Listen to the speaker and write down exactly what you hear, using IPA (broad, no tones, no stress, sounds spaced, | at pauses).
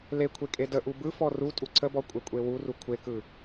l e kʷʰ e kʼ e d ə ʔ u b ɯ f ɔ r u tʼ u ǀʰ ə b ɔ kʷʼ e kʷʼ e w u r u kʷʰ e k ɯ